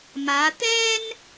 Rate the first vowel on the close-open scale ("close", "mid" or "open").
open